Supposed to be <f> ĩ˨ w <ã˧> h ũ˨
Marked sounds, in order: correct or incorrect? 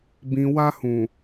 incorrect: b, incorrect: a˧

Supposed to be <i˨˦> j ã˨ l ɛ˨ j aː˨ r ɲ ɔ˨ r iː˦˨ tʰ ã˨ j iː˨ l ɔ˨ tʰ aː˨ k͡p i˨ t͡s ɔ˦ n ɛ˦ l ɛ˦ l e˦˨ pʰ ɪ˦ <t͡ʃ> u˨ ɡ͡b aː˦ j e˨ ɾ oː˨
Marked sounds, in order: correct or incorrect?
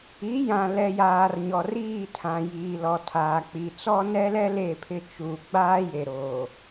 correct, correct

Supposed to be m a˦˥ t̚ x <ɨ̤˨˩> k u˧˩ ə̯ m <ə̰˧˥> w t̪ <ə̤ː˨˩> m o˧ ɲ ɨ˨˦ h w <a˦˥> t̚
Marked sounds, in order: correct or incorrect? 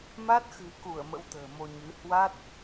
correct, correct, correct, correct

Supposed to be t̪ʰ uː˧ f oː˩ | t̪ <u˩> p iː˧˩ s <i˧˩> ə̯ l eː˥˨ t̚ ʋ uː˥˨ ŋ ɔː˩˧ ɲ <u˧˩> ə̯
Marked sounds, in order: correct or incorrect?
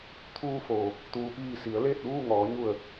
incorrect: uː˩, incorrect: i˩˧, correct

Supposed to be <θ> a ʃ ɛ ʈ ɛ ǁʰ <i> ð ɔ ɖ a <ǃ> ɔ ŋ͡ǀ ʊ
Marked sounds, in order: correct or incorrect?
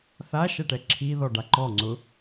correct, correct, correct

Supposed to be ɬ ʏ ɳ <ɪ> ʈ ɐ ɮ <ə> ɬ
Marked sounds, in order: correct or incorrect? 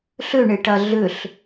correct, incorrect: ʏ

